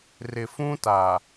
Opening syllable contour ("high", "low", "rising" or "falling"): low